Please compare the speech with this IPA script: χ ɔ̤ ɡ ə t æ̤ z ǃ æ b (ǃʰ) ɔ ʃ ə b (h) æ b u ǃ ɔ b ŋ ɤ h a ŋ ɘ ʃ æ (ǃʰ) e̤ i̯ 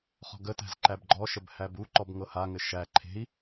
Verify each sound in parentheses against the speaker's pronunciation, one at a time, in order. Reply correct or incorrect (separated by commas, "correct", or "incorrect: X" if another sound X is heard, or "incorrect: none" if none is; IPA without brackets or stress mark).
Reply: incorrect: ɡ͡ǃ, correct, correct